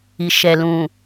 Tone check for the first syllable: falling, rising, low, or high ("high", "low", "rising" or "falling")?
low